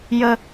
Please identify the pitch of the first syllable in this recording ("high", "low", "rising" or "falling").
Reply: high